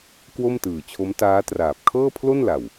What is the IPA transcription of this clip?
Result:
k w o˥˩ m t ɯː˨˩ t͡ɕʰ o˦˥ m t aː˦˥ t r aː˨˩ p̚ kʰ ɤː˥˩ pʰ l o˥˩ n l a˨˩ w

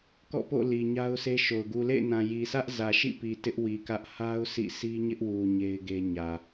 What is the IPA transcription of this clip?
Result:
k ɔ̰˦˨ p o̰˦˨ l i˨ ɲ a˦ ʊ̯ s e˦ ʃ o˨ ʊ̯ ɡ u˨ l ḛ˦˨ ɪ̯ n ã˨ j i˨ sʰ ä˦ ʔ z ä˨ ʃ ḭ˦˨ p i˨ t ɪ˦ ʔ w i˨ k ä˦ ʔ h a˦ ʊ̯ sʰ ḭ˦˨ sʰ i˦ ɲ ɪ˦ ʔ w u˨ ɲ e˦ ɪ̯ ɡ e˦ ɲ ä˨

